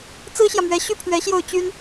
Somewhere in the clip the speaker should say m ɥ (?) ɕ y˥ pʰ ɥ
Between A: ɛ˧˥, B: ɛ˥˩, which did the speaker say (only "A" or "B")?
A